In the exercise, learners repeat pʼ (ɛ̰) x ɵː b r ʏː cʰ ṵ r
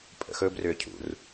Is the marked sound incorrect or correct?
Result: incorrect: ə̰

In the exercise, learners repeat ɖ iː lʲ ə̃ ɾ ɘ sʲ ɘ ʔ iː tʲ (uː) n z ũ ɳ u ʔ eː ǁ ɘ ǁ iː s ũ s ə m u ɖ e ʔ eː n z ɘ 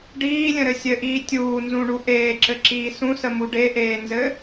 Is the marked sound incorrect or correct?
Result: correct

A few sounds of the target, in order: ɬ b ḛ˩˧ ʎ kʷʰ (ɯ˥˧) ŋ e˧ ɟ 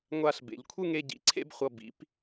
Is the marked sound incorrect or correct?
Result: correct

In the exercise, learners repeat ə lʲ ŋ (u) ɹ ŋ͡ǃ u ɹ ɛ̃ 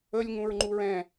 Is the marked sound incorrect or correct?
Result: incorrect: ũ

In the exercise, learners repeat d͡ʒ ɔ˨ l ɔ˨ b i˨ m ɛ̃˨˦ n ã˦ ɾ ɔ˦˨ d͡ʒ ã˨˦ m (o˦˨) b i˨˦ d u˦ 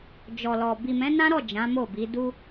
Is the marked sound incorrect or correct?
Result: correct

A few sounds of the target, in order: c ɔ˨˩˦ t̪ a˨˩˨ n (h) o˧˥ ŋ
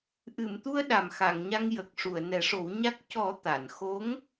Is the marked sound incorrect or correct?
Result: incorrect: x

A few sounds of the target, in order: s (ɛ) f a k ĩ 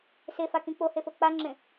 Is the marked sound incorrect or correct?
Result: incorrect: e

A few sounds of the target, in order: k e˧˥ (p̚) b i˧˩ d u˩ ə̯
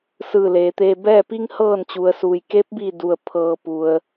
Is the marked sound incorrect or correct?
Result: correct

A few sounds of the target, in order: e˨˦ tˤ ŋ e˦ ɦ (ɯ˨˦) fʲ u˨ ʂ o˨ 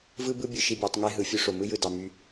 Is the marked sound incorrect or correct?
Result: correct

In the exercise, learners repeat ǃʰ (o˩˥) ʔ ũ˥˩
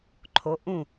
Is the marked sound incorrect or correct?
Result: correct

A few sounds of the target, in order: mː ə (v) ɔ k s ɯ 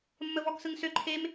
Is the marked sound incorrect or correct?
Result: correct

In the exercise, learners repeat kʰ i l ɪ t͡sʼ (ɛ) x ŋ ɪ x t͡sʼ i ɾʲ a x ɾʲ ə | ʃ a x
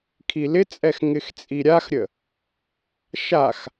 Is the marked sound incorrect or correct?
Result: correct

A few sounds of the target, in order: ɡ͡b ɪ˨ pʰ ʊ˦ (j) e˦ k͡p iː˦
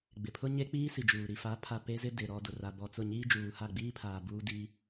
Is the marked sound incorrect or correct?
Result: incorrect: ɲ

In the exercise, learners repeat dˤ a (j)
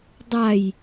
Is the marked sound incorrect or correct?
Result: correct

